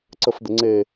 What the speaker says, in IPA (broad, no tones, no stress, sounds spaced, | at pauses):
ǀ ə f d̪ ɘ ŋ͡ǀ e